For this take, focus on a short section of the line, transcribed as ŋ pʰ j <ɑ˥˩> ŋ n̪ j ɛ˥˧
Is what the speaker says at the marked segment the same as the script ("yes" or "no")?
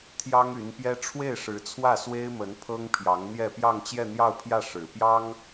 no